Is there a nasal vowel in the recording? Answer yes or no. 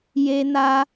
no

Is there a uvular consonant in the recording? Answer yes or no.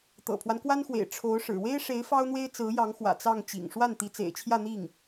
no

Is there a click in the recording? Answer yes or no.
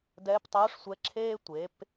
yes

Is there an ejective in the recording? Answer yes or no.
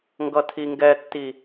no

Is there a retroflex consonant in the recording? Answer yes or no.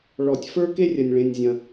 yes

